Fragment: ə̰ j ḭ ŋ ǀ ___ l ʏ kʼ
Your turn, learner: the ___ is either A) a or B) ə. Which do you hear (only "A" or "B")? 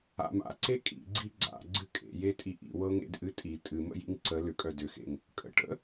B